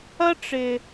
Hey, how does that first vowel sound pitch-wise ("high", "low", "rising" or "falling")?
high